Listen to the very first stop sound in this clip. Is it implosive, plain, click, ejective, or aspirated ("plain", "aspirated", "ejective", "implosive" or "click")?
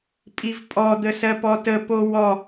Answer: ejective